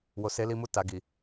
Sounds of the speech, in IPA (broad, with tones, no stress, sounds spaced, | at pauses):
w o˨ s e˨˦ l i˧ m u˧ t a˨ ɡ i˨